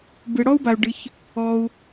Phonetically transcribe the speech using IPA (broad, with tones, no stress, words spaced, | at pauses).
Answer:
bɨ˩ɽɔ˥u̯ba˩u̯ ɖɨ˩ç | ɔ˩u̯